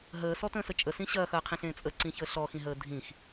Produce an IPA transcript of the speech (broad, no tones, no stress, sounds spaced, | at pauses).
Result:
ɦ əː s ɔ t ə̃ː s ə t͡ʃʼ ə s ĩ ɕ ɐː x ɐː qʰ ĩ ɬ ẽː t͡sʼ ə ǀ ĩ ç əː ɬ ɔ x ĩ ɦ əː dʱ ĩ x